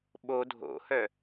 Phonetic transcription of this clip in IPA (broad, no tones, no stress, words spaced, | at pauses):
ɓo dʱo̰hœ